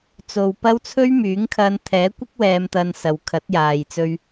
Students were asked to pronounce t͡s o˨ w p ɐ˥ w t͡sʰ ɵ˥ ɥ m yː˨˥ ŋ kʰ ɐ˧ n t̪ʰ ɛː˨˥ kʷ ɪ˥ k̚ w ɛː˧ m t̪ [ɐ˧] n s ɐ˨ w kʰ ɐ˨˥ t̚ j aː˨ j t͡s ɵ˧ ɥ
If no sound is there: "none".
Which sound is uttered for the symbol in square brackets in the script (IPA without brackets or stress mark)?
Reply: ɐ˧